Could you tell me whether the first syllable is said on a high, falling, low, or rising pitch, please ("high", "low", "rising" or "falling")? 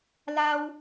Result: high